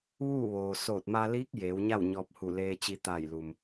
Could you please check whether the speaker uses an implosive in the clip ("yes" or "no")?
no